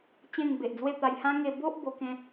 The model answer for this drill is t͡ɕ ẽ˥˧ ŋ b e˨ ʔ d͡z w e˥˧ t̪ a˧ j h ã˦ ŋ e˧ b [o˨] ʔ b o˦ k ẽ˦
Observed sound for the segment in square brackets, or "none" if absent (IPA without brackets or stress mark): o˦